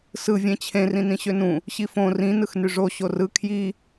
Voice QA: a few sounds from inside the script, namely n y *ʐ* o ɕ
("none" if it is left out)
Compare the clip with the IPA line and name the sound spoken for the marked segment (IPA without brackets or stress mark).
ʐ